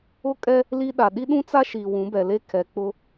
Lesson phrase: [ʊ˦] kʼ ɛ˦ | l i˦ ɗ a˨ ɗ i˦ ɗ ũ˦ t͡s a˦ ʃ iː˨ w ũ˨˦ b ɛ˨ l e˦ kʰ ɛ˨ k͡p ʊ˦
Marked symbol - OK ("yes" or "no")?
yes